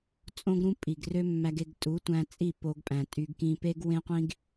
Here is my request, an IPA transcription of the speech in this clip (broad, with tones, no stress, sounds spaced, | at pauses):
t͡sʼ õ˦ ɡ ɾ ũ˦ pʼ i˨ ɡ r ø˦ mː æ˧ ɡ e˧ ɡ tʼ u˨˦ tʷ æ̃˧ t͡sʼ i˦˨ p o˧ ɡ pʼ æ̃˨ tʼ y˧ ɡ k ĩ˧ p e˦ ɡ w ẽ˦ qʷ ĩ˦ ɡ